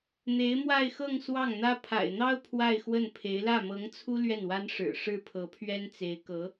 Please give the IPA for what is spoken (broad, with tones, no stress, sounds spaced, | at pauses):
n̪ e˧˥ ɪ̯ m w a˥˧ ɪ̯ x ɤ˥˧ ŋ s w ɑ˥˩ ŋ n̪ ä˥ pʰ a̰˨˩ ɪ̯ n̪ ɑ˥ ʊ̯ pʰ w a˥˧ ɪ̯ x w ə˥˩ n pʰ e˧˥ ɪ̯ l ä˥˩ m ɤ˧˥ ŋ t͡sʰ u˥ l ɥ ɛ˥˩ n w a˥ n ʂ ɻ̩˨˩ ʂ ɻ̩˥˩ pʰ ɤ˧˥ pʰ ɥ ɛ˥ n t͡s e˧˥ ɪ̯ k ɤ˧˥